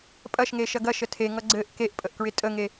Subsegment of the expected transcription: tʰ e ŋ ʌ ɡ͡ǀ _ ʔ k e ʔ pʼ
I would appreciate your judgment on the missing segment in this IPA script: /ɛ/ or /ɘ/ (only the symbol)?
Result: ɘ